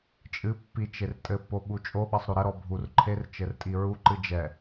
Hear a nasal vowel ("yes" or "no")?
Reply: no